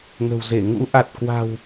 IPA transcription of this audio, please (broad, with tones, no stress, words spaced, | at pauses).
ŋə̤˨˩wze˧˩ ŋṵ˧˥ʔa˨˩t̚kwa̤˨˩w